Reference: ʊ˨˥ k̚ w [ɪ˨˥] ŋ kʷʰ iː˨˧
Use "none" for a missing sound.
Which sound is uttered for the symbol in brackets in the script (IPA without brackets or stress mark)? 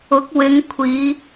ɪ˨˧